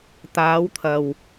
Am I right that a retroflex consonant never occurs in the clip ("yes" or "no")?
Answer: yes